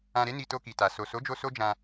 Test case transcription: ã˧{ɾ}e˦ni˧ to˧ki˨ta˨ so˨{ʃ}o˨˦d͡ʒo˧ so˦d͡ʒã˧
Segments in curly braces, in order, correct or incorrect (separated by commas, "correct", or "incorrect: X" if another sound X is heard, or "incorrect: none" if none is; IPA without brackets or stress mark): correct, incorrect: s